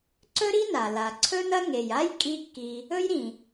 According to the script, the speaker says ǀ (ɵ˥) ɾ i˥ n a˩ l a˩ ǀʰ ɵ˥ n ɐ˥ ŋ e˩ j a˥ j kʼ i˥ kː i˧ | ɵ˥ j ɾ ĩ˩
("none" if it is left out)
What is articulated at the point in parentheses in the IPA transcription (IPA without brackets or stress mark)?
ɵ˥